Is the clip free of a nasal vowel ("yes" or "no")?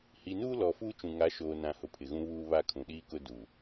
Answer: no